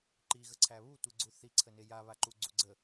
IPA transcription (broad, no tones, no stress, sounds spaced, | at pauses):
ǃ i ɣ ə ǀʰ æ β u tʷ i ɡ͡ǀ u θ i ǀʰ ə n e j a β a ǃ u ɡ͡ǀ u ɡ͡ǀ ə